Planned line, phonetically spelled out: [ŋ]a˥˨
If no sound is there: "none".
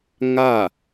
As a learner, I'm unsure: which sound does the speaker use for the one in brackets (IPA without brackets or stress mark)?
ŋ